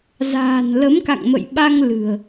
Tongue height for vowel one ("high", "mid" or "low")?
low